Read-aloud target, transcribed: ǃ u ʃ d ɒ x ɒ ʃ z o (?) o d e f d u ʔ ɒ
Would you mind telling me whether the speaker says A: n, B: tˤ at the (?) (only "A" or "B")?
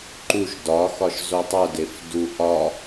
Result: B